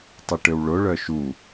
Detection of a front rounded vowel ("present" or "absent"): present